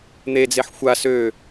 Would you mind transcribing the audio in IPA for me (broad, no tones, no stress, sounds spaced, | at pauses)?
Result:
n̪ e d͡z e ħ xʷ a s ø